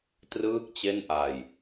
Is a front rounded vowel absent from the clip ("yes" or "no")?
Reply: yes